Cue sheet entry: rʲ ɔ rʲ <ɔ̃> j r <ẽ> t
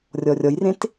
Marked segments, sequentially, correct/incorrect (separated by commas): incorrect, correct